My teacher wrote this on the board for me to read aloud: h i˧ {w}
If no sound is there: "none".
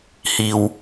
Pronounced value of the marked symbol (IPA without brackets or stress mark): w